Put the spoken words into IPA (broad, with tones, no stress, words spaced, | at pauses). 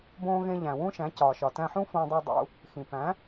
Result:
bõː˧ɣẽ˧ ʎæ̃˩wũ˥ʃæ̃˩˥cɒː˩ ʃɒ˩tæ̃˧ħũ˥ fõ˧dˤu˧dˤṵ˧ | xĩ˩ pæ̃˩˥